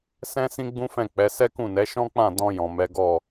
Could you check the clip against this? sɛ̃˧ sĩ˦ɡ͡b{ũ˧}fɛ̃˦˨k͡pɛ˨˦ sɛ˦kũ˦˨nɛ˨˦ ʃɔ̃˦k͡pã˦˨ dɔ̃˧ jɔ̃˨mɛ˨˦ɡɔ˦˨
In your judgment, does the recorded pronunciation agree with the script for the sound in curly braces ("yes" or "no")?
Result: no